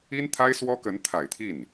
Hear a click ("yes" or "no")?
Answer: no